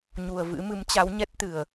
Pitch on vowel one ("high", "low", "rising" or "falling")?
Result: low